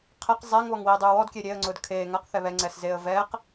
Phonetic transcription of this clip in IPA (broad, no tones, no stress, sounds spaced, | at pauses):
qʰ ɛ q zˤ ɛː ŋ β ɔ ŋ w iː dˤ ʉː w ɔ d kʲ e ɾʲ e ə̯ ŋ͡ǀ ʊː d kʰ eː ŋ a q θ ɛ β ɛ ŋ͡ǀ ɛː s z eː ə̯ v ɛː q